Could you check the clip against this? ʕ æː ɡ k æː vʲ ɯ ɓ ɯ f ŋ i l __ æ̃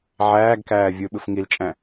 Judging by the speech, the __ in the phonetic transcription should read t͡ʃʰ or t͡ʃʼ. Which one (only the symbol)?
t͡ʃʼ